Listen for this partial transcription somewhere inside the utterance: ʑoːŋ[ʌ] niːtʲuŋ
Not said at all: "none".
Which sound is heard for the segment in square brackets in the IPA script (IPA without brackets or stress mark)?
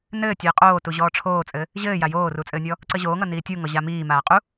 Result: ʌ